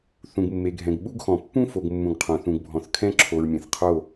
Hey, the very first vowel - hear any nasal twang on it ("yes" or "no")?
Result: yes